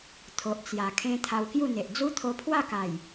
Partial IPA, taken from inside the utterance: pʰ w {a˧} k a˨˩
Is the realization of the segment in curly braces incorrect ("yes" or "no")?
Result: yes